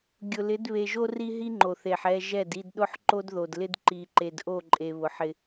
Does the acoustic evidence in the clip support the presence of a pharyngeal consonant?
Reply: yes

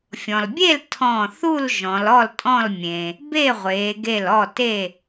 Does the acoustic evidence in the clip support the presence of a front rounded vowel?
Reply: no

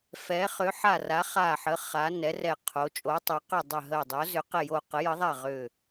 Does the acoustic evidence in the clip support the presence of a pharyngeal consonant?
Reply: yes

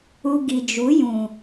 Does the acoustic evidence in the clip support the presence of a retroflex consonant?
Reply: no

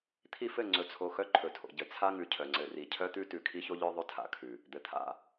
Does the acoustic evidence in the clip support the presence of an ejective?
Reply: no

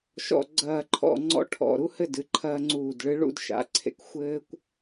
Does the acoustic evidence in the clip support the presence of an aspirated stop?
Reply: yes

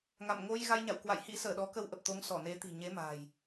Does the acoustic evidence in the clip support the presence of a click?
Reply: no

